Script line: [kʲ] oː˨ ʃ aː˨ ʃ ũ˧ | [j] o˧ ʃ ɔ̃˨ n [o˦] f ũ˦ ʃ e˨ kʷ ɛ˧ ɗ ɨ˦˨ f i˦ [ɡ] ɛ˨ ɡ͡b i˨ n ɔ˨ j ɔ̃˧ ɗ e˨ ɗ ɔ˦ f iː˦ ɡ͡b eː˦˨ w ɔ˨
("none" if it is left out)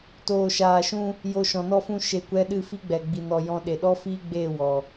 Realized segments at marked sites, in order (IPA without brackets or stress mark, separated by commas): t, j, ɔ˦, ɡ͡b